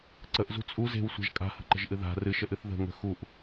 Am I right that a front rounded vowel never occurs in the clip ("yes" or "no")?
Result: yes